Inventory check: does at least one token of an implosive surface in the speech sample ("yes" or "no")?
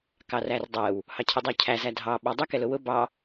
yes